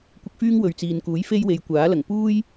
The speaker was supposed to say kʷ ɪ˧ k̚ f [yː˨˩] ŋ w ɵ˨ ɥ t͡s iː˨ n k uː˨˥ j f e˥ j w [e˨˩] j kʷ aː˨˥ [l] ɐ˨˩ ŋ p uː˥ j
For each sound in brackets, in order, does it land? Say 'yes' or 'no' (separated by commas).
no, no, yes